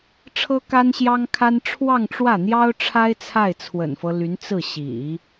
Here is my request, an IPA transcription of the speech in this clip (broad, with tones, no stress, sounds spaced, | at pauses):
ʈ͡ʂʰ ɤ˥ k a˥ n ɕ j ɑ˥ ŋ kʰ a˥ n ʈ͡ʂʰ w ɑ˥˧ ŋ ʈ͡ʂ w ä˥˩ n̪ j ɑ˥ ʊ̯ ʈ͡ʂʰ a˥ ɪ̯ t͡sʰ a˥˩ ɪ̯ t͡sʰ w ə̰˨˩ n f ɤ˦ l y˧˥ n t͡s ɹ̩˥˩ ɕ ḭ˨˩˦